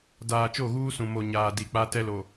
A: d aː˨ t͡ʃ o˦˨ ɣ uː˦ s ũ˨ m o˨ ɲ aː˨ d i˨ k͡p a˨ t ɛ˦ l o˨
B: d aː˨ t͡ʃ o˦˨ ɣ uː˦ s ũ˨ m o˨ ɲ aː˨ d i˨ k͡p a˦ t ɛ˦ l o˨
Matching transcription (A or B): B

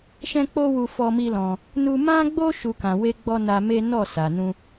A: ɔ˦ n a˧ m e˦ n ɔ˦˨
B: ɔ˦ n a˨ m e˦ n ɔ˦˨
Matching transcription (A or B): A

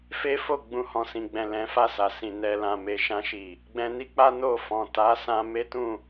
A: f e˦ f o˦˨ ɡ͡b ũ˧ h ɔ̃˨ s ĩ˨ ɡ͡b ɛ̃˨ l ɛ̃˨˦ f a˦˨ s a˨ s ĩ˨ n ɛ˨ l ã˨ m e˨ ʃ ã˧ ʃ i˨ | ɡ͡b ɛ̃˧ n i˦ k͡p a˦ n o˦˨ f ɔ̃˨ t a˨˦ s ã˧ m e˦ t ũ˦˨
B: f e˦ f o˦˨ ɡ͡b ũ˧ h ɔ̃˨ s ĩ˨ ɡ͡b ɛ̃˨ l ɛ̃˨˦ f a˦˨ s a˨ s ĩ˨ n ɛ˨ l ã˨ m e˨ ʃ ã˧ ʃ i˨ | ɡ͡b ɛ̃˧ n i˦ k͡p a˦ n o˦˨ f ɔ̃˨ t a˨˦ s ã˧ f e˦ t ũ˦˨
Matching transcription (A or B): A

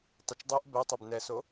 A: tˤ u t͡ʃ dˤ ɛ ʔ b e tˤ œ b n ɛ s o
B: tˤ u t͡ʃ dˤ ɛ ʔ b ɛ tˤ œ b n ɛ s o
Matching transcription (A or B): B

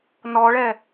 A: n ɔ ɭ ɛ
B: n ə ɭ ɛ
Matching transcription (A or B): A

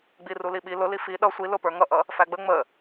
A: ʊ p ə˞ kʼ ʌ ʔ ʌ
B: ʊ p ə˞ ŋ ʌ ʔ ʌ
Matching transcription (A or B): B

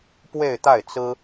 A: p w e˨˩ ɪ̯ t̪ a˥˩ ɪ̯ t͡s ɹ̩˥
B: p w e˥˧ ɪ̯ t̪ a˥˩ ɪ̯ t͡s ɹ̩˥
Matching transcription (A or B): B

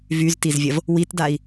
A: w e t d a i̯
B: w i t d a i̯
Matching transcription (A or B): B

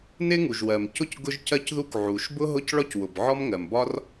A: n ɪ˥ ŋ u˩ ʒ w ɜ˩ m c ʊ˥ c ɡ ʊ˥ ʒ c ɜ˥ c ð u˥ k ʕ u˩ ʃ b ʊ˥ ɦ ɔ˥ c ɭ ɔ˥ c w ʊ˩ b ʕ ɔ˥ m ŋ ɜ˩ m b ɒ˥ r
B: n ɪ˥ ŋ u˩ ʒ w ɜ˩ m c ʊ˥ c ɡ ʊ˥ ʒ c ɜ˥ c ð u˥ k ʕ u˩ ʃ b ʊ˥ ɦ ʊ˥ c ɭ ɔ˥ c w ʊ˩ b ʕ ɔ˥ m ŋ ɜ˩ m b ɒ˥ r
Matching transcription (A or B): B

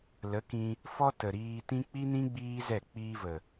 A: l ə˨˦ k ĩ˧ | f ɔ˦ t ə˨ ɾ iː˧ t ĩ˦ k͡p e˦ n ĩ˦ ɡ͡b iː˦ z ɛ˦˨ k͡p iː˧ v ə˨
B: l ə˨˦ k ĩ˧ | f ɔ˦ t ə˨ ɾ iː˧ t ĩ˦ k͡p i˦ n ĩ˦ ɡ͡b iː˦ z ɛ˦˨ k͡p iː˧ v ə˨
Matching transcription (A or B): B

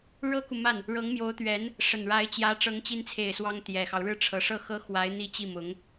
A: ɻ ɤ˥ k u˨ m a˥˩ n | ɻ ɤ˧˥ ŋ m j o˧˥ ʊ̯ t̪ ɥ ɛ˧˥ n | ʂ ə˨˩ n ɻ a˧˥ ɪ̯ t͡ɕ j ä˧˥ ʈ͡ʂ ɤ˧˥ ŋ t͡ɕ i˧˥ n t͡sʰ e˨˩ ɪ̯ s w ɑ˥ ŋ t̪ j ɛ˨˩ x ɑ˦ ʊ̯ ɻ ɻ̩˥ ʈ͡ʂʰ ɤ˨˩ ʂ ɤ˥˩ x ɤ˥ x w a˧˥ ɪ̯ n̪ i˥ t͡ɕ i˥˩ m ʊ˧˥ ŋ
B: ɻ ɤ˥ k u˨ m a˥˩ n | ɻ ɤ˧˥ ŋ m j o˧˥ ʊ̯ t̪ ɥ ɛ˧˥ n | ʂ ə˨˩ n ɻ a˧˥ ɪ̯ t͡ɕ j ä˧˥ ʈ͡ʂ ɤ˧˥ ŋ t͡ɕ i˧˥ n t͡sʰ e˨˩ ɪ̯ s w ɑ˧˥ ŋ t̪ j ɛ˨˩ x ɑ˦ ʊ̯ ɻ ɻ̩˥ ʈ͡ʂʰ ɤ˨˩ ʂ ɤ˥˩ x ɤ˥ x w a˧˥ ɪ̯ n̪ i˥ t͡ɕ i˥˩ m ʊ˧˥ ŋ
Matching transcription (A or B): A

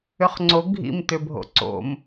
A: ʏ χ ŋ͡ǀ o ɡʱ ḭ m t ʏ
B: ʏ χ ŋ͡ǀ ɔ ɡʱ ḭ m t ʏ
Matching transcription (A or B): A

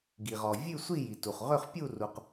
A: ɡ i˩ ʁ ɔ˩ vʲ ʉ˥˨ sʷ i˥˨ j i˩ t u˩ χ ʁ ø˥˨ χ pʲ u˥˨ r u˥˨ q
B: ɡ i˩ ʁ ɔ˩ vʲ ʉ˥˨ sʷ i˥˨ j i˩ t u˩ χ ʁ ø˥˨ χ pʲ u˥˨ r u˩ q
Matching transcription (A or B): B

